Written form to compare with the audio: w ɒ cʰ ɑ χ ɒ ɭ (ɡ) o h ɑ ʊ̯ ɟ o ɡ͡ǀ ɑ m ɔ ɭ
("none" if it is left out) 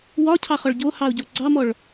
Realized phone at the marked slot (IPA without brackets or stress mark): ɟ